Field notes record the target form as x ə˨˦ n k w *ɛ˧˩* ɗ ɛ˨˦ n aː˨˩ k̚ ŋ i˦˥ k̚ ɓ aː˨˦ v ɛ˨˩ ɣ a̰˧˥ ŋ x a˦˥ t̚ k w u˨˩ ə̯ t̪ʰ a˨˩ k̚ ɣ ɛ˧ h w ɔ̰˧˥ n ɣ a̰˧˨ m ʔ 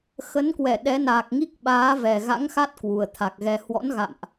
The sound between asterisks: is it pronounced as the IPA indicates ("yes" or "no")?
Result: yes